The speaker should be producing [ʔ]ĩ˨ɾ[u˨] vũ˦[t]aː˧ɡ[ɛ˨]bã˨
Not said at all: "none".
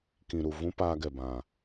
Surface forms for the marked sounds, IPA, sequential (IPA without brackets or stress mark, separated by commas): k, u˨, p, ɛ˨